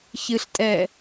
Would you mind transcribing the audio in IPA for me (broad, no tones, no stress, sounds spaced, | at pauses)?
ç ɨ ɬ tʼ ɛː